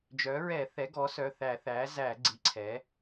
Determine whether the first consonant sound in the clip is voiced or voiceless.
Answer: voiced